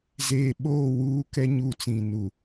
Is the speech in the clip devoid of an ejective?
yes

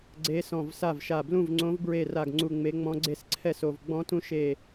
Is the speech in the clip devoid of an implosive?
yes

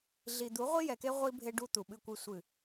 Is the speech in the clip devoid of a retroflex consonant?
no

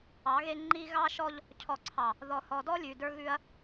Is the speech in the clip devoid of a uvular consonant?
yes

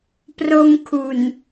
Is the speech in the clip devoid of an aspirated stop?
no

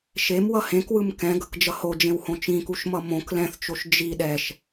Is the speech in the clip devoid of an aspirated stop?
yes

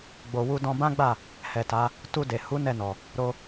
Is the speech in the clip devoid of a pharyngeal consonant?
yes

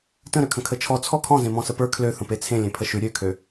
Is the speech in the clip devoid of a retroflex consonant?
yes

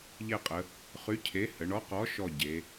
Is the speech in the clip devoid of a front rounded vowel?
no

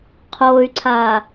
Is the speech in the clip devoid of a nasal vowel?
yes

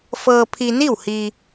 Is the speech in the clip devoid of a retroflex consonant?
yes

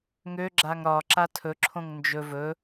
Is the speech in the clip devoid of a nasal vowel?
no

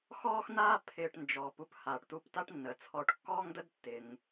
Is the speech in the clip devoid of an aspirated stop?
no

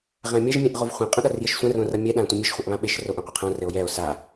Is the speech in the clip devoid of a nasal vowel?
no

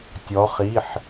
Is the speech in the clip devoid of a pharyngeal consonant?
no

